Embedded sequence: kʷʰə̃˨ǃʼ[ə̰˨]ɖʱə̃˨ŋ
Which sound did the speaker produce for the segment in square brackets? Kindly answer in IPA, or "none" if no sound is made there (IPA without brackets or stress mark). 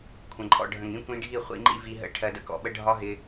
ɔ̰˨